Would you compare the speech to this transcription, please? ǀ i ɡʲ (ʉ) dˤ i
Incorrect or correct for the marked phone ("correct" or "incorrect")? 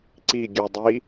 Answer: correct